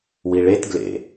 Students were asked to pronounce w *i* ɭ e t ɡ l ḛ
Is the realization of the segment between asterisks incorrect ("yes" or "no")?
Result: no